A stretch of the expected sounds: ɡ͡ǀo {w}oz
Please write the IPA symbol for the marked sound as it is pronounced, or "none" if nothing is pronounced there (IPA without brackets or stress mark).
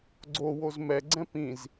w